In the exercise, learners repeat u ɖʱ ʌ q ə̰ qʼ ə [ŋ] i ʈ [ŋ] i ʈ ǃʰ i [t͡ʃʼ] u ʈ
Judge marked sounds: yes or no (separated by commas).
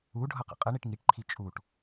no, yes, yes